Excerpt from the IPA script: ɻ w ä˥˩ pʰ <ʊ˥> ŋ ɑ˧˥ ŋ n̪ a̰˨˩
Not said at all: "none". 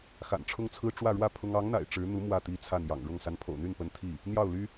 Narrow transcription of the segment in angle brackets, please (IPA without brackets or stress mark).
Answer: ʊ˥